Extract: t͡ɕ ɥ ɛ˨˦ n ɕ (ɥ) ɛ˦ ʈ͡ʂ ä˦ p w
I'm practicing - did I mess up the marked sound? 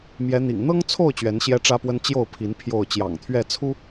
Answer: yes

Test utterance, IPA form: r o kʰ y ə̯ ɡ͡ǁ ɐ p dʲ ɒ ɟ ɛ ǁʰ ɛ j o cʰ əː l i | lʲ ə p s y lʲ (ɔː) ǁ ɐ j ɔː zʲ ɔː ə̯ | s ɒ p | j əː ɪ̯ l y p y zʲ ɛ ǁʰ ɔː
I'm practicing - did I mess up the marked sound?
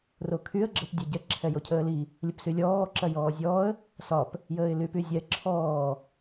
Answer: no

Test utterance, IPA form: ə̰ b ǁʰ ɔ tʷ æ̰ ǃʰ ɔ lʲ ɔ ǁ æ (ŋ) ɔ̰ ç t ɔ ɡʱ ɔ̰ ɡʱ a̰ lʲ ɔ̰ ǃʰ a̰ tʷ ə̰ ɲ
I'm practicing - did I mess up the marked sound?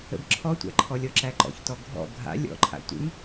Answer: yes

